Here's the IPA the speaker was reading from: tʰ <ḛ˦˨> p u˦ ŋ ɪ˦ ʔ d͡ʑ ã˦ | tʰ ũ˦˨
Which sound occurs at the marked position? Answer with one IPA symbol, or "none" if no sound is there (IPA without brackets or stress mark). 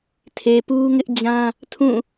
e˨